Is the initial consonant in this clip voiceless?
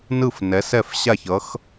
no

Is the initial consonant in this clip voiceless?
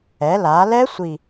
no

